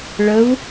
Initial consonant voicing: voiced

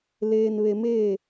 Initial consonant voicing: voiced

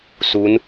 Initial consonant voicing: voiceless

